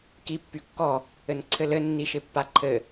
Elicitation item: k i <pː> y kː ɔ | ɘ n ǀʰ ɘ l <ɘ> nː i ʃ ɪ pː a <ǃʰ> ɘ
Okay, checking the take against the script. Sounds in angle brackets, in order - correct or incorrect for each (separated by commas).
correct, correct, correct